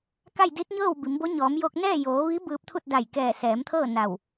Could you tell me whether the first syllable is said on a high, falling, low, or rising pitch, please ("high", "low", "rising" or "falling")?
falling